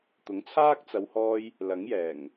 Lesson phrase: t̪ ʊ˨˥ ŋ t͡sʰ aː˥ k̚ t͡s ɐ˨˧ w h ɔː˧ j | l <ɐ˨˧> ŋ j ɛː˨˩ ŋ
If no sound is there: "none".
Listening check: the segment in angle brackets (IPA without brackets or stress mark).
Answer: ɐ˨˥